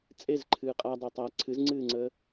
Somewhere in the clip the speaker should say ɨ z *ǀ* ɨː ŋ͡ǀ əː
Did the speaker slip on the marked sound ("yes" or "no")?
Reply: yes